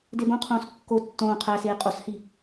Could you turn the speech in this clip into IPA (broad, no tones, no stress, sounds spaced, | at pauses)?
d e b õ qʰ õː s kː o tː õː qʰ æ s eː qʼ o s h i